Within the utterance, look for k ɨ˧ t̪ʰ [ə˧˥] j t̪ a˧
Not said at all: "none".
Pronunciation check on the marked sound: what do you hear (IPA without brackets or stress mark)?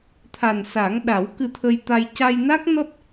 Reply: ə˧